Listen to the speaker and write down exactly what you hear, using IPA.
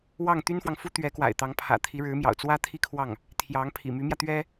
w ɑ˥˩ ŋ t̪ y˥ n f w ɑ˨ ŋ f u˥ t̪ ɥ ɛ˧˥ k w a̰˨˩ ɪ̯ t̪ ɑ˧˥ ŋ pʰ ä̰˨˩ t̪ʰ i˧˥ ɻ ɻ̩˧˥ m j ɑ̰˨˩ ʊ̯ t͡s w ä˥ t̪ʰ i˥˧ kʰ w ɑ˥˩ ŋ | t̪ʰ j ɑ˧˥ ŋ pʰ ḭ˨˩ m y˧˥ m j ä˧ t̪ ɥ ɛ˥

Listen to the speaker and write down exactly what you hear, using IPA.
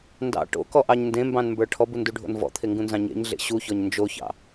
n d ɑ̰ ʈ o̰ k ɔ ʔ ɑ ɲ n d ẽ m b ɑ̃ n m b ə˞ ʈʰ ɔ b u n d u ɖʱ o̰ n v ɔ̰ t̪ʰ e ŋ ɡ ũ n z ɑ̃ ɲ ḛ ɲ ɮ ḛ ɕ u ç ɔ ɲ n d͡ʒ o ç ɑ̰

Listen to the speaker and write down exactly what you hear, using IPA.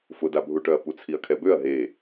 f ʊ d a bʱ u ʈ œ ɐ̯ p u t͡sʰ i ɐ̯ kʰ ɛ b ø ɐ̯ ɦ e

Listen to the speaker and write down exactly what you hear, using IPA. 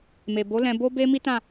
m e˨ b o˨˦ l ɛ̃˧ b o˦ b e˦ m i˦ t ã˦˨

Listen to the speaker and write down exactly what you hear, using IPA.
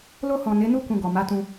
l o˧ h ɔ̃˨ n e˨˦ n u˦ k ũ˧ ɡ ɔ˨ m a˨˦ t ũ˧

